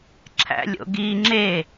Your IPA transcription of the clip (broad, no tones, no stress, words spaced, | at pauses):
ǁʰæ̰lʲo̰ɡi ŋ͡ǁe